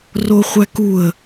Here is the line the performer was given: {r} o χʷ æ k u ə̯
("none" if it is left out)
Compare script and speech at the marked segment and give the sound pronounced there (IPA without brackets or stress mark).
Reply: r